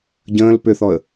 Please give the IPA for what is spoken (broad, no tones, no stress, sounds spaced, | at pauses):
ɟ ə̃ː l p ʏ θ ɔ ə̯